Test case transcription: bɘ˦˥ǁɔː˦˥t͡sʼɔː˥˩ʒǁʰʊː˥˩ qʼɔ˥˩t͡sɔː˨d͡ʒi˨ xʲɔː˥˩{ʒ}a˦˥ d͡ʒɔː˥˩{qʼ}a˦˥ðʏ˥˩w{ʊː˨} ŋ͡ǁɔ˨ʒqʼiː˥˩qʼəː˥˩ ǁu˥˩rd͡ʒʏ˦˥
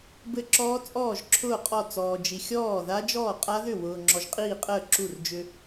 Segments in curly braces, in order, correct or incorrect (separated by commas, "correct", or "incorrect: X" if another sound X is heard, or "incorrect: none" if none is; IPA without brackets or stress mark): incorrect: ð, correct, correct